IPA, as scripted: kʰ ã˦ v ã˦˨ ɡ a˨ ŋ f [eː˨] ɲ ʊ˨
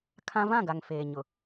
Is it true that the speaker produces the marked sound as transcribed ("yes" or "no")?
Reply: yes